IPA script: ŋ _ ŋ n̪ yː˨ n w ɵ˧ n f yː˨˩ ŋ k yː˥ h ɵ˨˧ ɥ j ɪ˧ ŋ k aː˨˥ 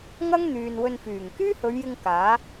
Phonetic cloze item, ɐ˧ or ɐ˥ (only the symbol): ɐ˥